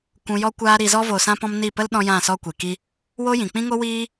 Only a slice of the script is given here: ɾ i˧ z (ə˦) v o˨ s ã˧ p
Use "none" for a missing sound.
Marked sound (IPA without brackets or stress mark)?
ɔ˦